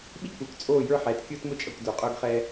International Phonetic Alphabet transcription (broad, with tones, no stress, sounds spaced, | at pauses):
ɓ i˦ kʷ ə˞˨ kʷ t͡sʼ oː˦˨ j ə˞˦ ħ ɛː˨ t kʲ ʊː˦ t m ʊ˦ t͡ʃʼ ʌ˨ kʷ d ʊː˨ qʼ ʊː˦ ɡ χ ɛː˦